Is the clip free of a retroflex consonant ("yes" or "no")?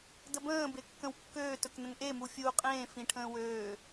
no